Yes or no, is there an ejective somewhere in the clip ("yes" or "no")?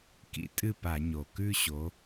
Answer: yes